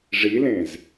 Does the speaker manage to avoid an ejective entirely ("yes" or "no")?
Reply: yes